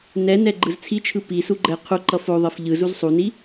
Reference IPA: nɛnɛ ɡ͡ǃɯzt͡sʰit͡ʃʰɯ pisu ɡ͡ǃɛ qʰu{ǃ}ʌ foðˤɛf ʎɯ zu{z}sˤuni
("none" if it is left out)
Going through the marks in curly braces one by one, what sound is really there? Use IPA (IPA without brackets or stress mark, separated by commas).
ǃ, z